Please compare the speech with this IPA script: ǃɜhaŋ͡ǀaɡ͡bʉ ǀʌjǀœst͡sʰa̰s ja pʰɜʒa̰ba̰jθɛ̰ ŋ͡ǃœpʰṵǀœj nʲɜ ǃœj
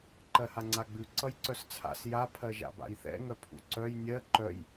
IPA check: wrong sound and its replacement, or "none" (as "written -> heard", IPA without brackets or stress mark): ŋ͡ǃ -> ŋ